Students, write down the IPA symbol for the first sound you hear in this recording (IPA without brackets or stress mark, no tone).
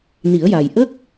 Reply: n